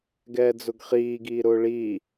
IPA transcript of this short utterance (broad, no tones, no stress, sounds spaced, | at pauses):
ɡ ɛː d͡z ʊ ɡ χ iː ɡ iː ɾ ʊː ɭ iː